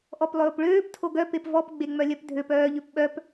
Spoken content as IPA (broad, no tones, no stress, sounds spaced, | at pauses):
ʔ ɔ p lˠ ɵː p ɭ øː p tʰ o ɡ œ p e p v ɔ p ɡ͡b e ŋ͡m œ lʲ œ p dʱ ø p œː ʎ ø p ɓ œ p